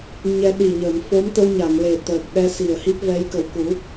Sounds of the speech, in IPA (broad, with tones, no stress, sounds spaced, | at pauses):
ɲ ɛ˧ ɗ i˨˩ ɲ əː˨˩˨ m f o˧˥ m t̪ ə˧ w ɲ a˨˩˨ ŋ l e˨˩ t̪ əː˨˩ k̚ ɗ ɛ˧ s i˨˩ ə̯ h i˦˥ p̚ v ɛ˧˥ j k ə˨˩ w k u˨˩˦